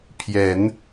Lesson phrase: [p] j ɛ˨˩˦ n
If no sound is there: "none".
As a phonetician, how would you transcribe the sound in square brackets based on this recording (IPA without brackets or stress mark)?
pʰ